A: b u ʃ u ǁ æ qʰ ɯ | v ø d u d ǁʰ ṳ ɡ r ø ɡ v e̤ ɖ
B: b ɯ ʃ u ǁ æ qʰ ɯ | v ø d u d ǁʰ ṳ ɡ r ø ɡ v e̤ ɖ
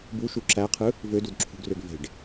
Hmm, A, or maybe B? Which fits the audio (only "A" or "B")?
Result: A